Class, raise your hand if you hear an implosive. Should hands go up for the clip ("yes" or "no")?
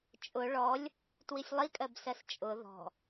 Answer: no